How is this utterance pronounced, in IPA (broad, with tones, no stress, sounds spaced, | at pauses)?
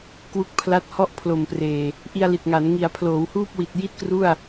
k w u˦˥ k̚ pʰ l a˦˥ t̚ h ɔ˥˩ ʔ pʰ l o˨˩ m p r eː˨˩ | ʔ i˧ a̯ l i˨˩ t̚ ŋ a˩˦ n ŋ i˩˦ a̯ pʰ l oː˩˦ w h uː˥˩ p̚ w i˨˩ t̚ j i˥˩ t̚ k r u˥˩ a̯